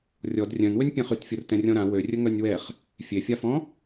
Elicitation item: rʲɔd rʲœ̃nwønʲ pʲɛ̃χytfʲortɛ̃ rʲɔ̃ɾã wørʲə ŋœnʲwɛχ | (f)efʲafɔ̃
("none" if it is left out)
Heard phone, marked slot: fʲ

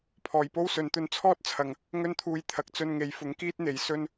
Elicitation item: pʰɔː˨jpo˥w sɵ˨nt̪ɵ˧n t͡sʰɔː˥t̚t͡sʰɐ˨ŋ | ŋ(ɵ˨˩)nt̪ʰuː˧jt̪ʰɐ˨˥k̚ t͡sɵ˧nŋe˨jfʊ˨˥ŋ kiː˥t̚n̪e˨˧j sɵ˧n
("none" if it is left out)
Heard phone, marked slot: ɵ˥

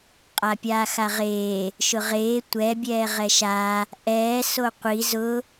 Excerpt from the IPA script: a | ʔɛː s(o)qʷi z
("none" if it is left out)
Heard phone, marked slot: o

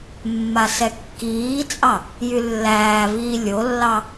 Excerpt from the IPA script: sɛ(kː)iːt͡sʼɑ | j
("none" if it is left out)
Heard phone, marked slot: kː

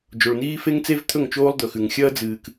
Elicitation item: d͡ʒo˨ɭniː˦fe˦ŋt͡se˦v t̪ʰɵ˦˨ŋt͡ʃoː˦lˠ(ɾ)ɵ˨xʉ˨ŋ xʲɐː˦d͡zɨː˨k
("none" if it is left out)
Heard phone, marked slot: d̪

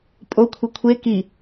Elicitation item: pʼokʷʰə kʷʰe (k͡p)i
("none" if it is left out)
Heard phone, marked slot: k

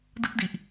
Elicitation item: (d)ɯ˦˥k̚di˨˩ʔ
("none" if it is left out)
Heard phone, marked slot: d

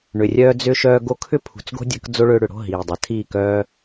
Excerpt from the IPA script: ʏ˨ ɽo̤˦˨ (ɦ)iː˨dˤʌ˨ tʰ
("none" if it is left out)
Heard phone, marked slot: ɦ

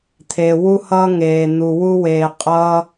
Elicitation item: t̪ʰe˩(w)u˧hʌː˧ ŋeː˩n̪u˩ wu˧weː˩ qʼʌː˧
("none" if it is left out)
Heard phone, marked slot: w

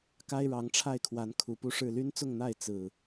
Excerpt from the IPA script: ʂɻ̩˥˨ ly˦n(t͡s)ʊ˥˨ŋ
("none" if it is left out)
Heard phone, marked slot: t͡s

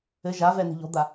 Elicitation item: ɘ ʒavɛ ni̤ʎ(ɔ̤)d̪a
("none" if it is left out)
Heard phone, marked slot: ɔ̤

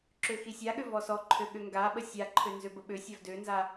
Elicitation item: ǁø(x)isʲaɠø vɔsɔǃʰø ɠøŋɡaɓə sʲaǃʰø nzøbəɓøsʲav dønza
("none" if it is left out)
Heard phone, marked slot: x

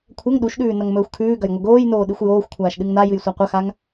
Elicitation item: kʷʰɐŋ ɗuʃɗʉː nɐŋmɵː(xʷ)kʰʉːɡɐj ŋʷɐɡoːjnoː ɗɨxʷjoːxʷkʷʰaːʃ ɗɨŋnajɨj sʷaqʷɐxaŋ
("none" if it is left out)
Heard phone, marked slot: xʷ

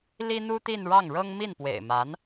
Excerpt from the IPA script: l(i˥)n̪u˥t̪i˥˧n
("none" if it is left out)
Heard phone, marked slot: i˥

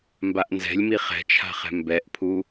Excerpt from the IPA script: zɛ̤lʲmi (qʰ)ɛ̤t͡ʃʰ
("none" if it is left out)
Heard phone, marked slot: χ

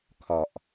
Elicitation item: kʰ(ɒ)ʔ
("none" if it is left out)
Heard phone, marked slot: ɒ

